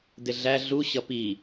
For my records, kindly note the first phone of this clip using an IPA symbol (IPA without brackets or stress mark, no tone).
d